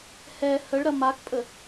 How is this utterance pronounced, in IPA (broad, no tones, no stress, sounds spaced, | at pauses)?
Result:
h ɛ h ə ɭ ɾ ɐ m a k pʼ ə